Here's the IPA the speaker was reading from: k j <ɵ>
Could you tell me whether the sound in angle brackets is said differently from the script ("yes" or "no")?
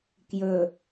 no